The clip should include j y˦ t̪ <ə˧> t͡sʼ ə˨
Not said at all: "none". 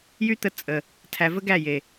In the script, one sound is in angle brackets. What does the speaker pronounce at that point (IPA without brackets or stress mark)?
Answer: ə˧